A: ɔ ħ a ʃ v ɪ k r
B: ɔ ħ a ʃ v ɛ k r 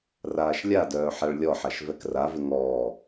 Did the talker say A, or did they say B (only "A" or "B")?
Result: B